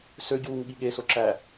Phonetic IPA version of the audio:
søɟuːŋ ɠiɠeso ǁæ

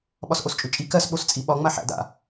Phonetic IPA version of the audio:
ɓɒsʔost͡ʃʼʉt͡ʃʼi kɜs ɓost͡sʼiɓɒ ŋ͡maħæ̰ da̰

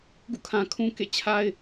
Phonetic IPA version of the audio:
ɡṵ˦˨kʰã˨kʰũ˦ kḛ˦˨t͡ɕʰa˦ɪ̯

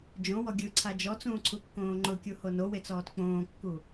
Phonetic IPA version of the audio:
d͡ʒõwɔ ɡʲɯǀʰa d͡ʒɔt͡sũːǀʰukːõː ŋ͡ǃʊkʲuho nowet͡sɔːt k͡põːkːu

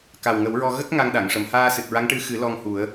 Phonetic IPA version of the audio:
ka˨˩wŋə˨˩˦wɹɔ˧ ɣə˦˥k̚ ŋa˧ŋɗa˨˩˨ŋ ʂə˨˩˨mhaː˧ sɨ˨˩t̚ɹa˧˥ŋʈɨ˧˥ xɨ˨˩˦ lɔ˧ŋhu˨˩˦ə̯

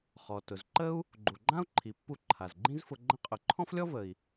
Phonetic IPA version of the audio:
χɔ˩ tʊ˩zǃə˥u̯ | ɡ͡ǃu˩ɡ͡ǃã˥u̯ǃʰi˩pːu˧ ǃʰa˩zɡ͡ǃĩ˥zfʊ˧ ɡ͡ǃə̃˧qʼʊ˩ ǃʰɔ̃˥flʲɔ˥ və˩i̯

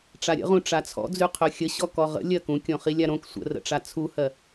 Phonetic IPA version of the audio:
ʈ͡ʂaɾʲə̰ʁũ ʈ͡ʂat͡sʰɔ̰d͡zʉ qʰɵxʲəɕɔ kɔʁə̰ lʲɜkũkʲõ χilʲaɾõk sʷə̰rə̰ʈ͡ʂa t͡sʰuhɜ

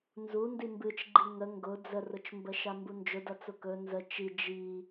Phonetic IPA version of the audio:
nzu ndimbɨt͡ʃɡ͡ǃi ŋə ŋɡʊ d͡zərʊt͡ʃmbə ʃambund͡ʒʊdɐ t͡sʊkɵ nzə t͡ʃi d͡ʒi

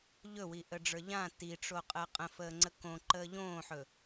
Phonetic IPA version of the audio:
ʎɵwiʔəɖ͡ʐə˞ ʎã tiʈ͡ʂoqʼəː qʼə̃fəːŋ͡ǀə kõǃəː ʎõːħɵ

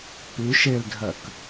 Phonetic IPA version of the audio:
pʉ ʃeldʱɜk

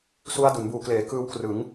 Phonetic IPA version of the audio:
su˦˥a̯du˩˦nbuː˨˩kleː˩˦ kɯː˦˥wkrɯ˩˦ŋ

